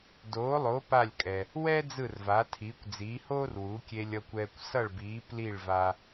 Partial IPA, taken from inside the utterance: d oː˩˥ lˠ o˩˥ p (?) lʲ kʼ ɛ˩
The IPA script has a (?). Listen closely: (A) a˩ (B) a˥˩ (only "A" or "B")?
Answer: B